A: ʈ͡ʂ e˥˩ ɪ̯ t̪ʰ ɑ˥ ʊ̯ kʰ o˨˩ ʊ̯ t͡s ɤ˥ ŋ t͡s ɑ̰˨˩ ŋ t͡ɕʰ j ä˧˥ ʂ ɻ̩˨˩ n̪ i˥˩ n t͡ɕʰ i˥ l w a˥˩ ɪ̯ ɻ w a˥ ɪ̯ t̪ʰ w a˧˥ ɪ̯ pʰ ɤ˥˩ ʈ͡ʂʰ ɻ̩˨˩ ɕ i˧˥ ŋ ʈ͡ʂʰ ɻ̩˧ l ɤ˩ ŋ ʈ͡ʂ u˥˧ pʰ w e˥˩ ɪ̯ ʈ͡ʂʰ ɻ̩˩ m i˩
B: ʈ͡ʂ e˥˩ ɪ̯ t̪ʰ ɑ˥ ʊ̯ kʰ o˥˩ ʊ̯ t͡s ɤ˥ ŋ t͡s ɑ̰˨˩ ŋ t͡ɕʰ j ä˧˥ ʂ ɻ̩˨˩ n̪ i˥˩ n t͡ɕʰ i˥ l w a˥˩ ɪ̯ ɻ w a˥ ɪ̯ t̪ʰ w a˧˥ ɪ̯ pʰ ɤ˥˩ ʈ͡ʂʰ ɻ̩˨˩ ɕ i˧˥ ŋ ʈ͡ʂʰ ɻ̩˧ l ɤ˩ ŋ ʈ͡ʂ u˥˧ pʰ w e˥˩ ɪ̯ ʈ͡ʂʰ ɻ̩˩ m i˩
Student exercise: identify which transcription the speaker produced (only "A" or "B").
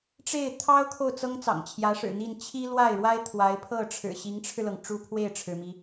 B